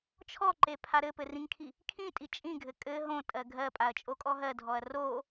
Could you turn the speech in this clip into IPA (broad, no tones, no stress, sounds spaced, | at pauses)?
t͡ʃʰ ɔ ǃ e pʰ a ɾ ɘ p ɘ r ĩ ŋ kʰ i | kʰ ĩ tʼ i t͡ʃʼ ĩ ɡʱ ɘ kʼ ɘ ɦ õ tʼ ɜ ɡʱ ɜ pʼ a ɐ̯ t͡ʃʼ o kʼ ɔ ɦ ɜ dʱ ɔ ɐ̯ r o